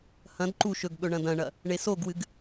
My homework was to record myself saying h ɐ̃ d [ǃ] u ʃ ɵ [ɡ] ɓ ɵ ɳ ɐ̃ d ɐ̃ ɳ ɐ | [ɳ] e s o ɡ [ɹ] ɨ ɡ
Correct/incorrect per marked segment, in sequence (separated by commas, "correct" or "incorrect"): correct, correct, correct, incorrect